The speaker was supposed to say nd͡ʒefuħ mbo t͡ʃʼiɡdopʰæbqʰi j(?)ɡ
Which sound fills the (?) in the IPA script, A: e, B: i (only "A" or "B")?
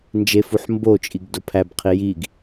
B